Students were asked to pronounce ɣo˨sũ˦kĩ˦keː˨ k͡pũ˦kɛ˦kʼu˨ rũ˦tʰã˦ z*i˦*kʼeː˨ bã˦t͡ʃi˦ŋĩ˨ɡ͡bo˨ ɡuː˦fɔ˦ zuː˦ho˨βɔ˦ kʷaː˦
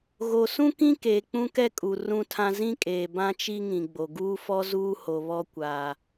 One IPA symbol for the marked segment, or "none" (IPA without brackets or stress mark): ĩ˦